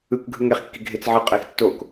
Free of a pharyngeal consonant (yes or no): no